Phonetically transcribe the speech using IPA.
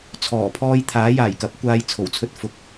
t͡sʰ ɔː˨˩ pʰ ɔː˥ j t̪ʰ aː˨˥ j aː˨˩ j k ɐ˨˥ p̚ kʷ aː˧ j t͡sʰ o˨˩ w t͡sʰ ɵ˥ t̚ f ʊ˧ k̚

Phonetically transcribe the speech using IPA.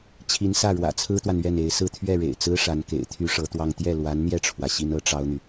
t͡ɕʰ i˧˥ n s ä˥˩ ɻ w ä̰˨˩ t͡sʰ ɹ̩˥ t̪ w a˨ n ɥ ɛ˥˩ n e˧˥ ɪ̯ s ɹ̩˥˧ t̪ʰ ɥ ɛ˥˩ ɻ ḛ˨˩ ɪ̯ t͡s ɹ̩˥ ʂ a˧˥ n k ḛ˨˩ ɪ̯ t̪ʰ y˥ ʂ ɤ˧˥ t̪ w ɑ˥˧ ŋ t̪ j ɛ˥˩ l w a˧˥ n n̪ j ɛ˥˩ ʈ͡ʂʰ w ä˩ ɕ i˥ n ɤ˥ ʈ͡ʂ ɑ˥ ʊ̯ n̪ y˨

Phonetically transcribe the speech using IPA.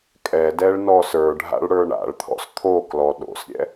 kʼ ɛ d ɛ ɭ n ɔ s ə˞ ɖʱ a̰ ɭ ɽ ə˞ ɳ a̰ ɭ t̪ʰ ɔ̰ s t̪ʰ o k l ɔ ɗ o̰ s ɾʲ ɛ̰

